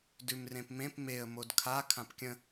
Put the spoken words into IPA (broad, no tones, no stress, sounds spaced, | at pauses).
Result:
d ʉ m r ẽ p m ẽ p m e ə̯ m o d kʰ a kʰ ã p kʲ ə̃